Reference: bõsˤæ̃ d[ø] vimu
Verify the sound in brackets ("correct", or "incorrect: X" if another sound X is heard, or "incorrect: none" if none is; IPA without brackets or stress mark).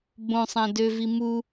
correct